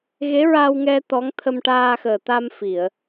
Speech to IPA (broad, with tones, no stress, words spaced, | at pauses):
ɣe˧˥ɹa˧wŋɛ˧ t̪ɔ˧˥ŋ t̪ʰə˧mʈaː˧xəː˨˩ t̪a˧m fi˨˩˨ə̯